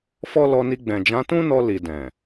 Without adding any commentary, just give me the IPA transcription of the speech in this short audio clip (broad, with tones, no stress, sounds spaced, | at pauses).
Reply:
f ɔ˦ l ɔ˧ n i˧ ɡ͡b ɛ̃˨ d͡ʒ ã˨˦ t ũ˦ n ɔ˧ l i˨ d ɛ̃˨